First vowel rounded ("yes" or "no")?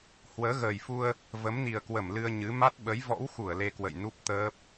no